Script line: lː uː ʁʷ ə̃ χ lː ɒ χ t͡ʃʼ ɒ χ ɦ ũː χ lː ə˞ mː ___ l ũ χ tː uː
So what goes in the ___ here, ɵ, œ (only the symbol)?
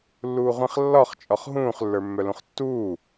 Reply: œ